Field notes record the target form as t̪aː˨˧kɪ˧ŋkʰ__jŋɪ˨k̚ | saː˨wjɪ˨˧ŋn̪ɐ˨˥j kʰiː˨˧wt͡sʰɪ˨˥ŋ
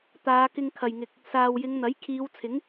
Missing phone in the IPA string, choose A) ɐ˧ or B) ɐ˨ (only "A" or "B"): B